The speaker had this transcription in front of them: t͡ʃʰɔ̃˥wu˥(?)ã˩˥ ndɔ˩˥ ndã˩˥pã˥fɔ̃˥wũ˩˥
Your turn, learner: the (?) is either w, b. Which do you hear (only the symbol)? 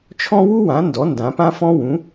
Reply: w